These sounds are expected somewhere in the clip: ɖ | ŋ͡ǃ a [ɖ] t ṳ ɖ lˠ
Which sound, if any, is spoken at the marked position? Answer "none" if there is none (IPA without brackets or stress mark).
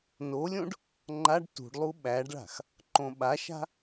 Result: ɖ